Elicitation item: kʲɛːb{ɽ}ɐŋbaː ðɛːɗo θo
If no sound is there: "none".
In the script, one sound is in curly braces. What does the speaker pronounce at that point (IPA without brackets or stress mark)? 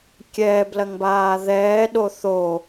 l